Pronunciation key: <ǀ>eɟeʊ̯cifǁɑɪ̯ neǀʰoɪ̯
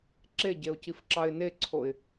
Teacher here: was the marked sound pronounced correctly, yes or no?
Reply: no